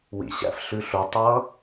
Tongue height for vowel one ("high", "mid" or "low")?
high